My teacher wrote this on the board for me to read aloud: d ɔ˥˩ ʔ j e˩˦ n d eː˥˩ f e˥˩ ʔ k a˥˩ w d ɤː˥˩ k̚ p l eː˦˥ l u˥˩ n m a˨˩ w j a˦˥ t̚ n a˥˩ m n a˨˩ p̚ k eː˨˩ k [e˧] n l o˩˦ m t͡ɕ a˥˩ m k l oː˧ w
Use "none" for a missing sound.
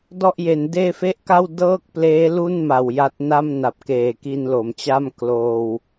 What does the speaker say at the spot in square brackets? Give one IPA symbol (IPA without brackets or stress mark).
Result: i˧